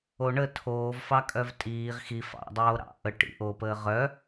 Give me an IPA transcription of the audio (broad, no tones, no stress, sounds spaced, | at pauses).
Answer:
o ɳ ə tʰ oː v f ɑ kʼ œ v tʼ iː ʁ x i f ɑ̰ dˤ oː ɾ ɑ̰ ʔ ə ʈ ḭ ʔ o p əː ʁ œ